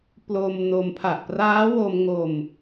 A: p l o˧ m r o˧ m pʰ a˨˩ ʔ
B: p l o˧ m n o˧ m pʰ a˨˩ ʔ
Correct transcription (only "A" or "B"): B